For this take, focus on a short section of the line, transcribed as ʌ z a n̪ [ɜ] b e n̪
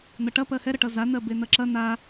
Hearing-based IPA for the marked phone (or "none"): ɜ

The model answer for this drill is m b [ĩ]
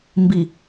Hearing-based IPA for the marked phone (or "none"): i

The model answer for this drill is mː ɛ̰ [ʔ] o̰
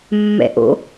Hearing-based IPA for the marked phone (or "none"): ʔ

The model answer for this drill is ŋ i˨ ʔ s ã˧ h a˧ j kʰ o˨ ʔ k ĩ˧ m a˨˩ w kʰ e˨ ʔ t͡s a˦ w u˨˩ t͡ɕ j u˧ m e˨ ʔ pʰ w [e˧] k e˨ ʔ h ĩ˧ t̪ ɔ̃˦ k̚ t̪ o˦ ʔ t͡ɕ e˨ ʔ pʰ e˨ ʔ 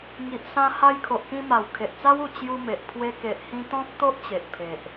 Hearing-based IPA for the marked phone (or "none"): e˧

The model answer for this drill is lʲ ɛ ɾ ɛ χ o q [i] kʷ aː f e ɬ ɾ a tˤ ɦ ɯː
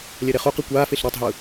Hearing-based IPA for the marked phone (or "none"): i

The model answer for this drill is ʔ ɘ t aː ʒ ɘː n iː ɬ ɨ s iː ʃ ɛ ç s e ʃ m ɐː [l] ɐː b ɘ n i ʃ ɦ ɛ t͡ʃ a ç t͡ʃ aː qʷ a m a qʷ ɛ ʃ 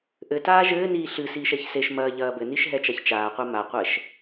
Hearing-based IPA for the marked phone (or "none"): ʎ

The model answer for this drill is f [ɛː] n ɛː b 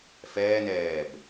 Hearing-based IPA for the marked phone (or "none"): ɛː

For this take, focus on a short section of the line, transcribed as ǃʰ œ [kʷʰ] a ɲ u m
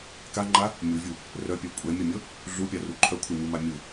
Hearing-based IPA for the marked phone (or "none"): kʷʰ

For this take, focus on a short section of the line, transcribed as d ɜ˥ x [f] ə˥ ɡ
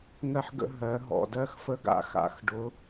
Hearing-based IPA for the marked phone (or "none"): f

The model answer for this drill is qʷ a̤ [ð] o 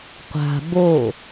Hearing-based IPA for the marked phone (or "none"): b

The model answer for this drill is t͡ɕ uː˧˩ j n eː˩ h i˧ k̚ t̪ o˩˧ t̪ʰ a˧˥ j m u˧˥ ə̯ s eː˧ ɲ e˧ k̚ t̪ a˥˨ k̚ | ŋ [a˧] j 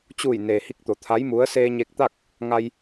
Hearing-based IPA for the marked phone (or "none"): a˧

